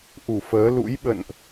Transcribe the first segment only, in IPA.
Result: ʔ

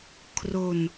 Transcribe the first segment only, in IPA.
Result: kʰ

